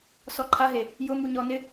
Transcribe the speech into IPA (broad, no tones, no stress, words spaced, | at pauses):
sɔǃʰaɦe | jʊ muɲɔ nɪ